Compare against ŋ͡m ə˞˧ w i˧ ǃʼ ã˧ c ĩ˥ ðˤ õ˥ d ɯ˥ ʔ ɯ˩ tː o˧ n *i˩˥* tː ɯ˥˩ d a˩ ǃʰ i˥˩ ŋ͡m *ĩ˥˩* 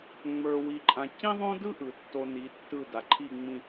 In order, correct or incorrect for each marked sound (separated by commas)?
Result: correct, correct